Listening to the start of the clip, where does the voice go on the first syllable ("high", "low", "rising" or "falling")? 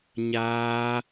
high